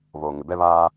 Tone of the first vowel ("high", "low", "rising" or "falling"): low